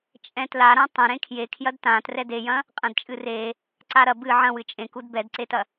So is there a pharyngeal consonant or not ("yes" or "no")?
yes